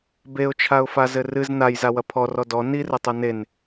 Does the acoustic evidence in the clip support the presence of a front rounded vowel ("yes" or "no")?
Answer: no